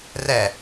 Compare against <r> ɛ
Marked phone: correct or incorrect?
correct